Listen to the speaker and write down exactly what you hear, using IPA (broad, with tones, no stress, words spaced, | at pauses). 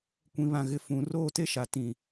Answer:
kʷĩ˨βã˨ɣɪ˨ fũ˨ roː˦˨te˦ʃa˨ tĩ˨